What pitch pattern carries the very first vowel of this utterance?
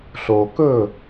low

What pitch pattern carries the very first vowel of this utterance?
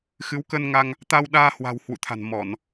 rising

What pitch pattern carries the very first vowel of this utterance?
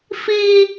high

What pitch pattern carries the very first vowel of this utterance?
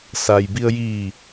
low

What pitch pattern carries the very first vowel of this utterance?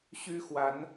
high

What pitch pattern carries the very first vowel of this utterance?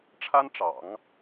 high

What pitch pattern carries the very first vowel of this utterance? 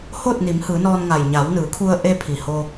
falling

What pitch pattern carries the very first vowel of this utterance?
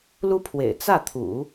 high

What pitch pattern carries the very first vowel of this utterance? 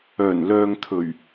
low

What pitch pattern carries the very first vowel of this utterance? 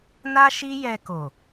high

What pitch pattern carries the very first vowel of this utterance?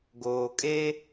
low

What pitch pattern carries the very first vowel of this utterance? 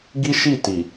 high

